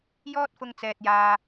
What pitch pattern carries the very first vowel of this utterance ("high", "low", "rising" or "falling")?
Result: high